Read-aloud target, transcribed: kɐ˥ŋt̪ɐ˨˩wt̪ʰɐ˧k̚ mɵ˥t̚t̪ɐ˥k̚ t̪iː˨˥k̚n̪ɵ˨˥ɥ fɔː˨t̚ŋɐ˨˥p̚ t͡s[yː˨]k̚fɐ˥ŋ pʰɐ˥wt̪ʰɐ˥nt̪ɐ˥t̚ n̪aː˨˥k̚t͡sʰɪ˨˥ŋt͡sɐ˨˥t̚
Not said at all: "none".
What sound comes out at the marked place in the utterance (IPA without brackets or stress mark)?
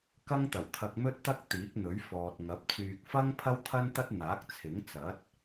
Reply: yː˨